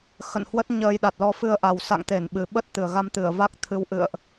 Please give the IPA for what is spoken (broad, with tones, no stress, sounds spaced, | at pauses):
x ə̰˧˨ n h w ə˦˥ t̚ ɲ əː˧ j ɗ a˨˩ t̚ l ɔ˧ f ɨ˧ ə̯ ʔ a˨˩ w s a̰˧˨ ŋ t̪ e˧˩ n ɓ ɨ˨˩ ɓ ə˦˥ t̚ t̪ ɨ˨˩ ə̯ ɣ a˧ m t̪ ɨ˧˩ ə̯ v a˦˥ k̚ t̪ʰ ɨ˧ w ʔ ɨ̰˧˨ ə̯ ʔ